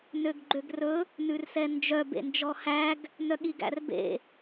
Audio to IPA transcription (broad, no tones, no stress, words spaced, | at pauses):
nøɡɡ͡ǃøɡrɵ | nʉrsɛnd͡ʒœ bḛnd͡ʒɔhæɡ | nœɠiɡæ̰rbḛ